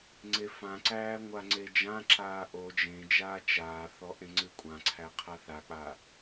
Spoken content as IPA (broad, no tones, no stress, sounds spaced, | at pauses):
ŋ͡ǀ e f ã ǀ æː ŋʷ a ŋ͡ǀ e d͡ʒ ã ǁ aː ʔ o d͡ʒ ẽ d͡ʒ aː t͡ʃ aː θ ɔ ʔ ẽ ŋ͡ǀ ɨ kʷʼ ã ǀʰ æ qʰ a θ a k͡p a